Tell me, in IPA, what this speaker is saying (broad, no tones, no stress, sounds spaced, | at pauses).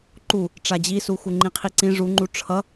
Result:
ǃ u | ʈ͡ʂ a d͡ʑ i s u x u ŋ͡ǃ ĩ qʰ i ǀ ĩ ʐ u ŋ͡ǃ u ʈ͡ʂʰ ʌ